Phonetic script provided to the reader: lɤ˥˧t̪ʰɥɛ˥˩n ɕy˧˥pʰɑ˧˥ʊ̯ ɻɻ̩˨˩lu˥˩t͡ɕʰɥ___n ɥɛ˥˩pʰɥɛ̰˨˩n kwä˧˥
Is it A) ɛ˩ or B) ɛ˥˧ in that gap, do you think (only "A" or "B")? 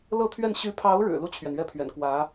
A